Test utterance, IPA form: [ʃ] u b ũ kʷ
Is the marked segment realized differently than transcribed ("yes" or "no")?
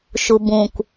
no